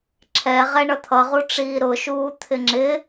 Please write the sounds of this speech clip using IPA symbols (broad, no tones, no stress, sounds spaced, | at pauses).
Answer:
ǁʰ ɛ ʁ ɛ ɳ ʌ t̪ʰ ʌ ʁ u ʈ͡ʂ iː ɾ ʊ ʃ uː t̪ʰ ɪ ŋ͡ǁ ɪ